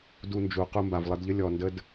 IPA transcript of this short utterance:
d u˧ n d͡ʒ u˨ q u˧ m b a˨ v lˠ ə˧ d ʎ ə˦ lʲ ɔ˨ n d ə˦ d

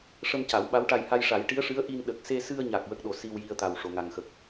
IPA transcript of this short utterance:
ʂ ə˧ m c a˨˩˦ w ɓ a˧˥ w ʈ a˧ j h a˧ j ʂ a˨˩˦ j ʈ i˧˥ ə̯ ʂ ɨ˧˥ ə̯ ʔ i˧ n ɗ ə˨˩ k̚ s e˧ s ɨ˧ ə̯ ɲ a˨˩ k̚ w ə˦˥ k̚ ɗ o˨˩ s i˧ w j i˧ ə̯ t̪ a˨˩ w ʂ o˨˩˨ ŋ a˨˩ ŋ x ə˨˩ k̚

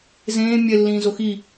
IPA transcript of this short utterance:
z ẽː mʲ ɛ lː ĩː z o x i

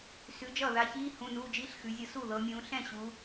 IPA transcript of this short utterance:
s ʉ˨˥ d͡ʒ ʌː˥˩ ð a˨˥ ç iː˧˥˧ h ũ˧˥˧ n uː˧˥˧ d͡ʒ i˧˥˧ ɬ x ʉ˩˧ zʲ ɤ˧ s u˥˩ ð ɤ˩˧ mʲ ũː˩˧ ɬ ɛ̃˥˩ ɕ u˩˧

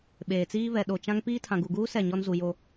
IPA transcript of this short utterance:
ɓ eː˨ t͡s iː˦ β ɛ˨ ɗ o˨ t͡ʃ ã˦ ŋ p iː˦ tʰ ã˨ ɡ u˨ ɡ uː˦ s ɛ˦˨ ɲ ɔ˦ n z u˨ j o˨

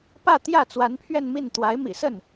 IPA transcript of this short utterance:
p ä˥˧ t̪ j ä˥˩ t͡s w a˧˥ n pʰ ɥ ɛ˥˧ n m i˥˩ n t̪ w a˧˥ ɪ̯ m ḭ˨˩ s ə˥˩ n

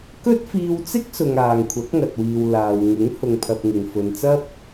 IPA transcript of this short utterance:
k ɵ˥ t̚ f iː˧ w t͡s ɪ˥ k̚ s ʊ˨ ŋ aː˨ ŋ kʷʰ ɐ˨˥ k̚ ŋ ɐ˨ t̚ w iː˨ w l aː˨ w ŋ ɪ˨˥ ŋ h ʊ˧ ŋ pʰ ɐ˧ p̚ ŋ ɪ˨ ŋ f ɵ˨ n t͡s ɐ˥ p̚

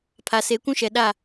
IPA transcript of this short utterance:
pʰ a˨ s e˨˦ kʷ ũ˦ ʃ ɛ˨ ɗ a˦˨

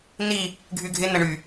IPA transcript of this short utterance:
n i | ɡʱ y ɡʱ ɪ n ə ɳ y

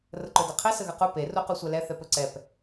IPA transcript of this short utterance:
r ə ǃ ɵ d e qʰ e s ə ɣ ə q u p e r u q u sʷ ɛ l ɛ θ ɛ p ɵ ǀ ɛ p

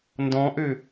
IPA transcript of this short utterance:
n d ɔ̃ ʔ ø

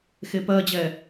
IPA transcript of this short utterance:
x e p ɜ d͡ʑ ɛ

